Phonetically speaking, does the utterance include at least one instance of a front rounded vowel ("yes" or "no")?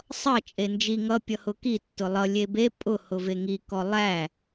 no